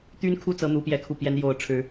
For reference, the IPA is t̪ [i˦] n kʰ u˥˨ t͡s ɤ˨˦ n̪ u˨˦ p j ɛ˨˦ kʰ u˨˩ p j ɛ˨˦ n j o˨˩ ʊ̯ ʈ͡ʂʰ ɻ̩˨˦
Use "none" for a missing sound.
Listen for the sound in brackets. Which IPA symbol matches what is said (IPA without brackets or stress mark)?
y˦